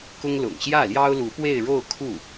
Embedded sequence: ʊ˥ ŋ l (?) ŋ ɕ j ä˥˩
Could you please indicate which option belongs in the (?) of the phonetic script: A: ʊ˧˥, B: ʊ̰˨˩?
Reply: B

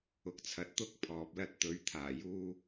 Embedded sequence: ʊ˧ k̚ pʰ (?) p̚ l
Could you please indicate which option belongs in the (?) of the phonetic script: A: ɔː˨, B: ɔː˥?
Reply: A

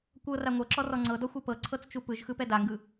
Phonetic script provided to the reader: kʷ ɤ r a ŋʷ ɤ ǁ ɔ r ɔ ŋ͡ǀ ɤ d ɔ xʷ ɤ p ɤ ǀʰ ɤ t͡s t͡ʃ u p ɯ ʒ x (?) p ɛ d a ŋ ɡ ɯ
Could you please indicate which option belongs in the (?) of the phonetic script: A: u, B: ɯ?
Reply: B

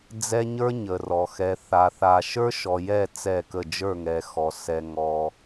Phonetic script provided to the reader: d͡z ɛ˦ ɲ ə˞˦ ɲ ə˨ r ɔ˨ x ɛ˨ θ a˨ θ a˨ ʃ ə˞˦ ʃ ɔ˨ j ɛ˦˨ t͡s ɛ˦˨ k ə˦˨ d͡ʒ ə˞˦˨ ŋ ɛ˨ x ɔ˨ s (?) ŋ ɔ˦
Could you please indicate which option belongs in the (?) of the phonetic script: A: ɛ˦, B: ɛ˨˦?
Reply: A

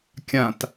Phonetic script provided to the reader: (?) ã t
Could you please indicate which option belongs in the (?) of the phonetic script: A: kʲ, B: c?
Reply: A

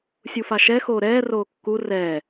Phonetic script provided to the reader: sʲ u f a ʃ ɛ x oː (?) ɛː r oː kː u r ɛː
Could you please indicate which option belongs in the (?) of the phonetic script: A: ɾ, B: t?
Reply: A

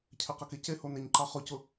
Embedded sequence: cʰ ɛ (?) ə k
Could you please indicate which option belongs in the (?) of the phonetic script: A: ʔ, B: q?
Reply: B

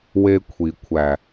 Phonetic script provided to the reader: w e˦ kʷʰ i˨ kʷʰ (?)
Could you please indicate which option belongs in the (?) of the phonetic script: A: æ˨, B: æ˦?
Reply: A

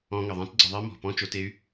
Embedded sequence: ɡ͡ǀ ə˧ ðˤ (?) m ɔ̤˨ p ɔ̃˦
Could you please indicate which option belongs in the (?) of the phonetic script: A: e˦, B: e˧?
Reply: A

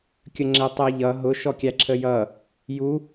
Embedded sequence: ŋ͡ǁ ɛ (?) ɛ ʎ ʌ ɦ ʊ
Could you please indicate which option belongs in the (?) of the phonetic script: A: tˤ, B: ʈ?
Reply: A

